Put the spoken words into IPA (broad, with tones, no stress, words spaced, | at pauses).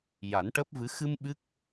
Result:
ja˨˩˦nʈəː˦˥p̚vɨ˧˥ xɨ˧m ɓɨ˦˥k̚